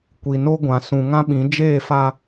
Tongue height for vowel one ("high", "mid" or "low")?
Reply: high